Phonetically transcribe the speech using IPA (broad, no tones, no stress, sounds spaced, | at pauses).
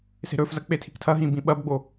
s e̤ ɾ ɵ f z ɐ k͡p e tʰ i̤ k tʰ ɐ ɦ ĩ b ĩ ɓ ɐ b ɡ͡b o